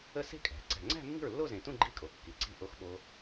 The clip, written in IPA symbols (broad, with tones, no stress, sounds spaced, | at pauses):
ə˥˩ s e̤˥˧ kʼ æ̤˩˧ ǀ æ̤˨˩ ŋ͡ǀ æ̤˥˧ mː i̤˥˩ ɹ lː o˥˧ z ẽ˨˩ t ũ˥˧ ɡ͡ǃ i˥˧ kʼ o˩˧ kː i˩˧ ǀ i̤˥˩ ʔ o˦˥ x ɓ o˦˥